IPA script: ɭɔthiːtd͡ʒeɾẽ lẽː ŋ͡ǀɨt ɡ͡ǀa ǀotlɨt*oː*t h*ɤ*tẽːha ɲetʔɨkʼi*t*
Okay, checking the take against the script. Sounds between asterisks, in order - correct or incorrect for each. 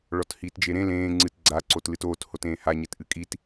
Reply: correct, incorrect: o, correct

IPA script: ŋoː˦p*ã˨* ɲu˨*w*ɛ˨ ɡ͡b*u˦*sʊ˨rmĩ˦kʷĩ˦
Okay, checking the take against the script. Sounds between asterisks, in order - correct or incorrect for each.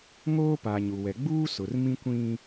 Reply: incorrect: a˨, correct, incorrect: uː˦

